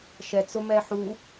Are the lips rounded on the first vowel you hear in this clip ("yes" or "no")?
no